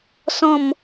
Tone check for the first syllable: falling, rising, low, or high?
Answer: falling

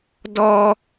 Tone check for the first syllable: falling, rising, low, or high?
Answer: high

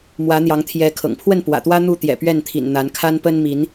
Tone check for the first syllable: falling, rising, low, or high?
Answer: rising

